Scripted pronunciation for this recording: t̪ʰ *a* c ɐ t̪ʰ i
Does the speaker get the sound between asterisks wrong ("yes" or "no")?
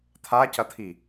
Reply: no